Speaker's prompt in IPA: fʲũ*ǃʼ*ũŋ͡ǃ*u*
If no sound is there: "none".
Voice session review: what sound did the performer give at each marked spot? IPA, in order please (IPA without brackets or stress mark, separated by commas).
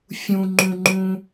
ŋ͡ǃ, ũ